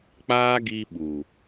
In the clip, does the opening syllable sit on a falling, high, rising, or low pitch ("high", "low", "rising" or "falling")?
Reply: high